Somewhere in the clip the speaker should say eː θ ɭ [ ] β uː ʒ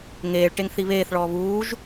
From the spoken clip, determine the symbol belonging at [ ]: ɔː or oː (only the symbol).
ɔː